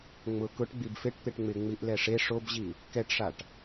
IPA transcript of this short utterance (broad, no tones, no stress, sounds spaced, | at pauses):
ŋ͡m ʊ k ʊ ʈ ɡ͡b i b f e ʈ t̪ e ʈ ŋ͡m ɪ ŋ͡m i ʔ l ɛ ʂ e ʂ o b ʑ i | k ɛ ʈ ʂ a ʈ